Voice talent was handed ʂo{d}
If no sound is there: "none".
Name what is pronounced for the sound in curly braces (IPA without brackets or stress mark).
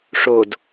d